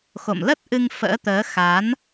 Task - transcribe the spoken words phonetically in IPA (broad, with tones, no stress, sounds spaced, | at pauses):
x o̰˧˨ m l ə˦˥ t̚ ʔ ɨ˧ ŋ f ə̰ː˧˥ t̪ əː˨˦ x a˨˦ n